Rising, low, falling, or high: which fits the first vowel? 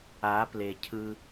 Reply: rising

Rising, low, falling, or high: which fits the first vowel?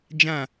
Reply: falling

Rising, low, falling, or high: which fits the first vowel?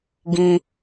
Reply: low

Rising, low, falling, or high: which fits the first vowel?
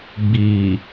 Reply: low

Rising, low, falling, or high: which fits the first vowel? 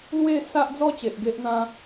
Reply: falling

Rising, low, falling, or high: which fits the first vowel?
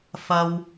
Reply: high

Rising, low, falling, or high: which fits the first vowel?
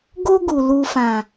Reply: high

